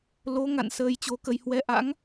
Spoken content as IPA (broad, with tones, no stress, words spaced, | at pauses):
lo˨˦ ŋa̰˧˨n səː˧jt͡ɕo˨˦kə˧j hwɛ˨˦ʔa̰˧˥ŋ